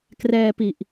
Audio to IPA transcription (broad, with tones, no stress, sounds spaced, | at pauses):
k r ɛː˧ p i˨˩ ʔ